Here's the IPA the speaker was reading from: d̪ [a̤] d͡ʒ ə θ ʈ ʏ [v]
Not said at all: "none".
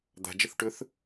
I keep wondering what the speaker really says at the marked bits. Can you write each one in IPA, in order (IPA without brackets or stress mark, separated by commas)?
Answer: a̤, θ